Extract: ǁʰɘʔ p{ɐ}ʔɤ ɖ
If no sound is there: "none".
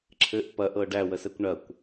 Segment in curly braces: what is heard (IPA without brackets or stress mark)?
ɐ